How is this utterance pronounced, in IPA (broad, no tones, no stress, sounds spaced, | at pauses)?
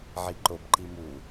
ʕ i ǃ o b ǃ i m u